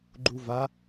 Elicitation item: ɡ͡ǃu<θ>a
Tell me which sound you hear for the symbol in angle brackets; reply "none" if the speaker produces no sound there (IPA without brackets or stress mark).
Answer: v